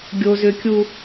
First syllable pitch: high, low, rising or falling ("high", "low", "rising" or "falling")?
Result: low